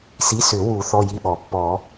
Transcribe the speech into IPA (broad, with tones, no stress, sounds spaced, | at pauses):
s i˩˧˩ s ʏ˨˩˦ w u˨˩˦ θ ɔ˩˧˩ j i˩˧˩ ɓ ɔ˩ pː ɔ˨˩˦